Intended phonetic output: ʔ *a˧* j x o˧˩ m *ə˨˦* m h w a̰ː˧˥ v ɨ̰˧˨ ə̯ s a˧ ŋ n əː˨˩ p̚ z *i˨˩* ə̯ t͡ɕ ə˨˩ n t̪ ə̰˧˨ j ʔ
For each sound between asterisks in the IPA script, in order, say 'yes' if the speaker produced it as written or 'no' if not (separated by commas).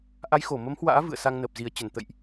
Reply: no, yes, no